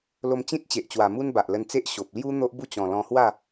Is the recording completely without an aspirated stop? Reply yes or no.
yes